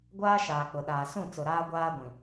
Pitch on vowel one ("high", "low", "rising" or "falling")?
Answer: high